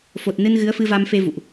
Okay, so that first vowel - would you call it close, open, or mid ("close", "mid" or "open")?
mid